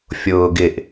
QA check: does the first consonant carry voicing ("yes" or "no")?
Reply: no